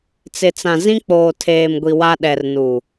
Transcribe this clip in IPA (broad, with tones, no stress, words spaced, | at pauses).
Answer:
t͡sɪ˨t͡sã˨ zĩ˦k͡poː˨tʰeː˨mɡʷi˨ wa˦ɗɛ˨rnu˨